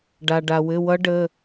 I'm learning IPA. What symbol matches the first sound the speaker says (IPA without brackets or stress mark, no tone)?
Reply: ɖ